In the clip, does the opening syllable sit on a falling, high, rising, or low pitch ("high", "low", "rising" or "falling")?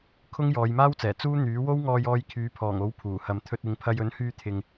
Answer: high